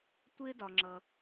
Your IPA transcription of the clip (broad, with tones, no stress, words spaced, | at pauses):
tʷɪː˦dɒ˩ŋ͡ǁʌ˩